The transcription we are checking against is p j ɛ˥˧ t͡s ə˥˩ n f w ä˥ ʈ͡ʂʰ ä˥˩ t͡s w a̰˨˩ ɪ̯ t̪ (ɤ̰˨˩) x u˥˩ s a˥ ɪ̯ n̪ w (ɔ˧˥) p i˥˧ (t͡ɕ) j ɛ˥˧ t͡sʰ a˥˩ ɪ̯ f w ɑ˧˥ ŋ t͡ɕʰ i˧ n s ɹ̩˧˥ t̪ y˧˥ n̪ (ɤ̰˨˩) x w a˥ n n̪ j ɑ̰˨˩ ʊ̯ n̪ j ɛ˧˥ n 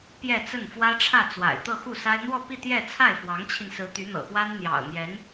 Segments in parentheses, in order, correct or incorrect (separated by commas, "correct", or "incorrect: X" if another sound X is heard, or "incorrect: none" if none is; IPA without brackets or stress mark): incorrect: ɤ˥˧, incorrect: ɔ˥˧, incorrect: t̪, correct